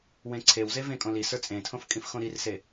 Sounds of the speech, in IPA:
wẽǀʰewze vẽkʼõli sə˞t͡sʼẽtʰõf kʼĩfxõɾirse

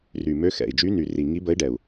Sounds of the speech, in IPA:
ry˨˩mø˧˥xɛ̰˨˩i̯d͡ʒy˧˥ ny˨˩ri˨˩ ŋi˧˥bə˧˥i̯ɖɛ˨˩u̯

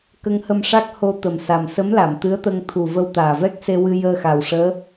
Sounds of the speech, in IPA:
kə˧ŋhə˧mʂa˦˥k̚ ho˧ t̪ə˨˩msa˨˩msə˧˥mla˨˩˨m t̪ɨ˧˥ə̯t̪ə˧ŋ t̪ʰu˨˩ və˧wt̪aː˨˩vɛ˦˥k̚ se˧wɨ˧ jəː˧xa˨˩w ʂəː˧˥

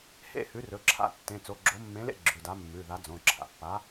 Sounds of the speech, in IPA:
hḛ˥˨hʉ˨˥rɵ˩˧˩ǁʰa̰˥˨ tːẽ˩˧˩t͡so˩˧˩ɡ͡ǁo˨˥ mːẽ˨˥lḛ˥˨ ɡ͡ǁʉ˩˧˩da˨˥mːʉ˩˧˩ða˨˥ d͡zõ˩˧˩ǁʰa̰˩˧˩pːa˨˥

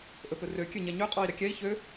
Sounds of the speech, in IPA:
ʔɵpɵrø kʲøɲɛɲø qʼɔi̯ɾɛkʲɛi̯ çø

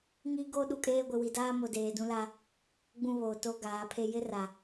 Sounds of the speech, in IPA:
ŋi˦ ɡo˦ ɗu˨kʼeː˦ɡʷɪ˨ wi˨daː˦mo˨deː˨ dũ˦la˦ | ɡ͡bũ˦βoː˨to˦ ɡaː˨˦pʰe˦ jɪ˦ ra˨

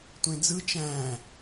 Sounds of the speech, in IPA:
tʷẽd͡zɯ t͡ʃæ̃ː

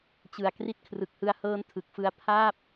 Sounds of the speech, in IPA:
t͡ɕɯ˨˩a̯ kri˦˥t̚kʰrɯ˨˩k̚hɯ˧a̯hɤː˦˥n tʰɯ˨˩k̚fɯ˦˥a̯ pʰaː˥˩p̚

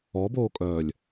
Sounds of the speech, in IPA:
ɔboːkʼœːlʲ

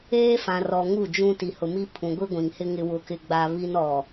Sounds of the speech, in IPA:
eː˦fã˨rɔ˨ ŋu˦˨d͡ʒũ˦ ti˨hʊ˨mi˦ pʰũ˨ɡʷi˦ɡʷĩ˨ŋhɪ˦ ŋɪ˦wʊ˦kɪ˦ɡ͡ba˦ βi˦n ɔ˨

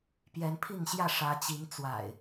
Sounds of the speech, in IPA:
pjɛ˨˦npʰi˥˨ŋɕjä˥˨ ʂä˨˦ t͡ɕi˨˦ŋt͡swa̰˨˩ɪ̯

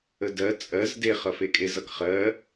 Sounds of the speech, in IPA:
ədɜ t͡sʼɜz deχʌfekʼe zʌkχɜ

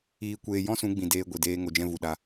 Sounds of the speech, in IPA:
iː˧kʷeː˧ jɔ̃˦sũ˨˦ɡ͡bĩ˨ deː˧ɡʷi˨deː˧ ŋo˨d͡ʒɛ̃˧ vu˨ ɗa˧

